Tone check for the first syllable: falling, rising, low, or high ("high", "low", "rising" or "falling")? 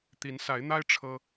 rising